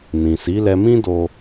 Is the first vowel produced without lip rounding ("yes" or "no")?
yes